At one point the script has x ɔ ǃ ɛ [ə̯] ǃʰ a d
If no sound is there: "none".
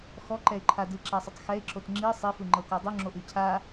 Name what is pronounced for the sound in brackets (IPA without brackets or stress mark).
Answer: ɪ̯